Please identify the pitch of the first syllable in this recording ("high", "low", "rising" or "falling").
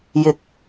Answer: rising